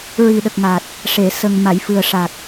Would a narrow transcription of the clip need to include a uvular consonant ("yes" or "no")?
no